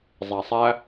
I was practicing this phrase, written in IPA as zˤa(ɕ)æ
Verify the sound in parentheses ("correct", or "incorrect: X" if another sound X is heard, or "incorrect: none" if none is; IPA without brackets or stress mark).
incorrect: sˤ